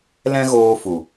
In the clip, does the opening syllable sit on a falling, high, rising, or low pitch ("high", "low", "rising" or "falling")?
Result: high